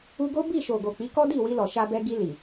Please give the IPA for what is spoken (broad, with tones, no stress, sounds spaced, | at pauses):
u˧ ɡ o˦ b i˦˨ ʃ o˨ ɡ o˨ k͡p i˨˦ k ɔ˦ d i˦˨ w i˧ l ɔ˨ ʃ a˧ b ɛ˧ ɡ i˧ l i˨